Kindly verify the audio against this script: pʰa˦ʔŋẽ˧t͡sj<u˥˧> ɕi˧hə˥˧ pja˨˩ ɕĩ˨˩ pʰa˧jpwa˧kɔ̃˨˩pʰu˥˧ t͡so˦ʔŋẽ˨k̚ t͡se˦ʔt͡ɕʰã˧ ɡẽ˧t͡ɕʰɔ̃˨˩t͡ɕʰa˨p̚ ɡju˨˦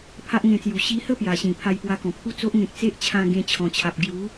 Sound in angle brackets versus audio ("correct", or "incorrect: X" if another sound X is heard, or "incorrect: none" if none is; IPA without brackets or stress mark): incorrect: u˨˩